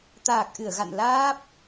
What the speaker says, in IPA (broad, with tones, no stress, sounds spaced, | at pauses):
t̪ aː˨˩ k̚ ʔ ɨ˧˩ ə̯ ɣ a̰˧˨ n l aː˦˥ p̚